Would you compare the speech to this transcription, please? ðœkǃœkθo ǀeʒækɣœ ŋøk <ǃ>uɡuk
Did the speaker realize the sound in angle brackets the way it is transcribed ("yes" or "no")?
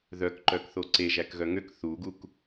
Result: no